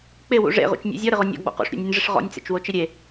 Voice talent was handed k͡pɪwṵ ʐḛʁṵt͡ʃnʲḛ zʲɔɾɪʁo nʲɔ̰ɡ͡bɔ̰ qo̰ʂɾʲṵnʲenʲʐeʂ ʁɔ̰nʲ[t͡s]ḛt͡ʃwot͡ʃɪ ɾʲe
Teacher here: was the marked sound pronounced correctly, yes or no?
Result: yes